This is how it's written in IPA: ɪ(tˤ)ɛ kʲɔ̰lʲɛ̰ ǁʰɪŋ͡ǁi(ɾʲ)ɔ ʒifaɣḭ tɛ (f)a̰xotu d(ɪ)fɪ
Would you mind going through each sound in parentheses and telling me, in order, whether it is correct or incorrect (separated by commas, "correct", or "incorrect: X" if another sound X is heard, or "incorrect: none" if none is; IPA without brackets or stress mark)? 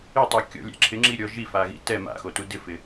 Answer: correct, correct, incorrect: m, correct